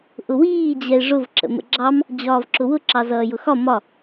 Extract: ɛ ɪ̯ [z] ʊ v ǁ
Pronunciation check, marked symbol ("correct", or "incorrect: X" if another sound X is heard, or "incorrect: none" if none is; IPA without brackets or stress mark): incorrect: ʐ